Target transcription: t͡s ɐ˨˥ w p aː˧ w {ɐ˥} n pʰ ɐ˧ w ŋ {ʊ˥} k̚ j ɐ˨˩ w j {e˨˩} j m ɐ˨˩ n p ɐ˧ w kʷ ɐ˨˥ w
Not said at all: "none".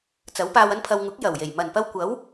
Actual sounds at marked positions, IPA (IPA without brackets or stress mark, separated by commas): ɐ˥, ʊ˨˥, e˨˩